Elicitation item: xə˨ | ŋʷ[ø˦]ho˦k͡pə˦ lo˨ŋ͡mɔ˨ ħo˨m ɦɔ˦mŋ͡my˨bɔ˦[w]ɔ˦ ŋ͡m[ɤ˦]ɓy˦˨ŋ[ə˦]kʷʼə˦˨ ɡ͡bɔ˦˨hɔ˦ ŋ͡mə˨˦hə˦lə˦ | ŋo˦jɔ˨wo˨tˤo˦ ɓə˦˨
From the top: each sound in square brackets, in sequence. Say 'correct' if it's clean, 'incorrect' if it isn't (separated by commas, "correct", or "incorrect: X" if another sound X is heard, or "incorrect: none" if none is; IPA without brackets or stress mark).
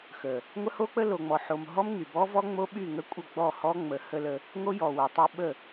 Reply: incorrect: ə˦, incorrect: v, incorrect: o˦, correct